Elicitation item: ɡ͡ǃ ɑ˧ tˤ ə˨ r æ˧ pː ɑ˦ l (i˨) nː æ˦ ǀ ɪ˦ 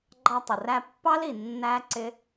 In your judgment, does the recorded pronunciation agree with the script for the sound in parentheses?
yes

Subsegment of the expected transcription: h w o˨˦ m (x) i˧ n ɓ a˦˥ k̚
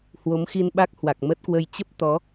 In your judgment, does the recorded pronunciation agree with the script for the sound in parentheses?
yes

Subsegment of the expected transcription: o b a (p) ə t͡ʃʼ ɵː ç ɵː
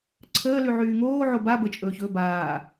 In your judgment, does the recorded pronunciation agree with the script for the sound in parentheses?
no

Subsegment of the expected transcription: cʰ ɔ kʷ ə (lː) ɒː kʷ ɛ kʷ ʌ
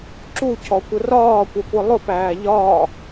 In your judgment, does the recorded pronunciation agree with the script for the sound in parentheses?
no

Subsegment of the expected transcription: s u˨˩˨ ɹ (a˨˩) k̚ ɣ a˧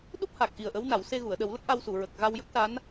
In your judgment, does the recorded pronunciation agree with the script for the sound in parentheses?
no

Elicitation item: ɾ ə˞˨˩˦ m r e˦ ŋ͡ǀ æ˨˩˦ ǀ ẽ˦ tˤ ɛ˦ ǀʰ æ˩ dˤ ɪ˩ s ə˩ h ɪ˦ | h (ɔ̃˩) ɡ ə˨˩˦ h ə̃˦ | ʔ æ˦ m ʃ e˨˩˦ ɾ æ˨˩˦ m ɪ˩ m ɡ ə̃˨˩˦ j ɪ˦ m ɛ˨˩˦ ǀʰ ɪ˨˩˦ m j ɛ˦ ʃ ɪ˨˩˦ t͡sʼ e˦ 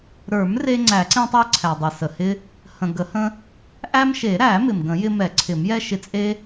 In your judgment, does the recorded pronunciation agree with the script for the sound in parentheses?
no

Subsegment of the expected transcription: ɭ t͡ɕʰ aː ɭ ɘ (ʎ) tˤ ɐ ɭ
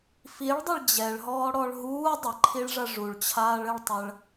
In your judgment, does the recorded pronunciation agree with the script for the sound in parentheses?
no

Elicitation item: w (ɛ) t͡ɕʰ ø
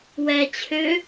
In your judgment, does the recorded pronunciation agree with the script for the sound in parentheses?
yes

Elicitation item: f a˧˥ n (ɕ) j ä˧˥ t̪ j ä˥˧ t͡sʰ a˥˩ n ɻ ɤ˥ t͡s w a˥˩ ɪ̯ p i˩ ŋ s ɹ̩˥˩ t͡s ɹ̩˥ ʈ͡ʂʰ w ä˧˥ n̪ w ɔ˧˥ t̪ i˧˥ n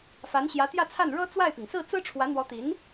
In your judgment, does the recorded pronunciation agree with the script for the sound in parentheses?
yes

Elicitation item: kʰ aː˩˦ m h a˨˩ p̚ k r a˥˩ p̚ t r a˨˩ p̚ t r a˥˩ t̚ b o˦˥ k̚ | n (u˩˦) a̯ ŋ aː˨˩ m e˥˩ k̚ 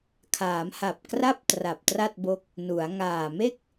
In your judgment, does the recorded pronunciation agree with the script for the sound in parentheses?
yes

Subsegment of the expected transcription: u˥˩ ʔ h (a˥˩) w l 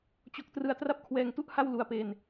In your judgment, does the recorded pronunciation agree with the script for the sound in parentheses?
yes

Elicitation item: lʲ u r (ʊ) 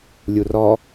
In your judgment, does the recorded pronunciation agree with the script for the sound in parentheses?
no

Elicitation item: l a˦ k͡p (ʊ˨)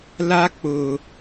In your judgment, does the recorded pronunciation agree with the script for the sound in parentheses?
yes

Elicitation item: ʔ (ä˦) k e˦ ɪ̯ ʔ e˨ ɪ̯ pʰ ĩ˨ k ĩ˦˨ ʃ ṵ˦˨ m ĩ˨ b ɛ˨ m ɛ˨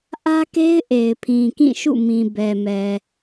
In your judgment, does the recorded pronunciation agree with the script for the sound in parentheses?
yes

